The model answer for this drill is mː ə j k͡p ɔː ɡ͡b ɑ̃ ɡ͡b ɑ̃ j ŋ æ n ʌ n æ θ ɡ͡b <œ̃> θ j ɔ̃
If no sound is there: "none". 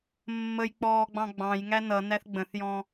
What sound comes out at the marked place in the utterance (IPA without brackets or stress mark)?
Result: ə̃